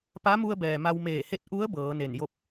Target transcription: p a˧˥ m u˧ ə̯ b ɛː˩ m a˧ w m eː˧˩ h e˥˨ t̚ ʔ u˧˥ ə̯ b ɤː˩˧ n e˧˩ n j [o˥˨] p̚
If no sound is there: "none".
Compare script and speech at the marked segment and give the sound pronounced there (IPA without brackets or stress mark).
o˥˨